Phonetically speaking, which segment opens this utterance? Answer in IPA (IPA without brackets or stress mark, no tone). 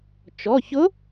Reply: t͡ʃ